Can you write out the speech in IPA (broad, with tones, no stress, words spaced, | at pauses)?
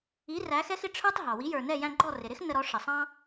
i˩˥ ræ˩˥xɛ˥xɪ˧ ʈ͡ʂʰə˞˥tˤɦɑ˩ wi˩˥jə˞˩nɛ˥˩ jæ̃˧ɡ͡ǃɔ˥˩ rɪ˩ɾɪ˥x nə˧ɾɔ˩˥ ʂə˩sˤɑ̃˥